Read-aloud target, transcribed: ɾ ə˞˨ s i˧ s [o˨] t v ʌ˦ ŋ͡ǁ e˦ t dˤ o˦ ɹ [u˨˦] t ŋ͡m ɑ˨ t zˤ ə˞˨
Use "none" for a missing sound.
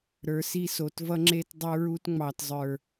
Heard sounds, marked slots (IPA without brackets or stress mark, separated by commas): o˨, u˦